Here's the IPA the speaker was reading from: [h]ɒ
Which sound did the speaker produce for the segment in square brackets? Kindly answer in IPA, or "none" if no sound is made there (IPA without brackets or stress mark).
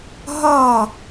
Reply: ɦ